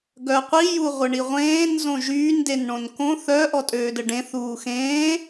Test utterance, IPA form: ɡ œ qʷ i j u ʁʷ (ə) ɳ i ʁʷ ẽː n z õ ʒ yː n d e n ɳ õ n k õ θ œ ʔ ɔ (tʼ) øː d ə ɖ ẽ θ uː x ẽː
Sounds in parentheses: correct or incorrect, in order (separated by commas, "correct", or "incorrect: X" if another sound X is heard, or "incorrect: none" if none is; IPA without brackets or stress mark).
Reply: correct, correct